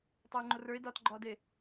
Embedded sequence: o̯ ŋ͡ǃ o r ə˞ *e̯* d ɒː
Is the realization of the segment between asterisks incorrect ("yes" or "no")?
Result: no